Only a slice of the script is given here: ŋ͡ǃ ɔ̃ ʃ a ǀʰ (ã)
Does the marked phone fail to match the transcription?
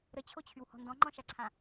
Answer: no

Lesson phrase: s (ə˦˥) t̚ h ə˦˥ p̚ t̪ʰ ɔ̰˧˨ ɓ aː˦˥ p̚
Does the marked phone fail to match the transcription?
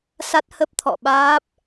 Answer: yes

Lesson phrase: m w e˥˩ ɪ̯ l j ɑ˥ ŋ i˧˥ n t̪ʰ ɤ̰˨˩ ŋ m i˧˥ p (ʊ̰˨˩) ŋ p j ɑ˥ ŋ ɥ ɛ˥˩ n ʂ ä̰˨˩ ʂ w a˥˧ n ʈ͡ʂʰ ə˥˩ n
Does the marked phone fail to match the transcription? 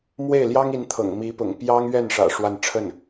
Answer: no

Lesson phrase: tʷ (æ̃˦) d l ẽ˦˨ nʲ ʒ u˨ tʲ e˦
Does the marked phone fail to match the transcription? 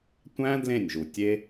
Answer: no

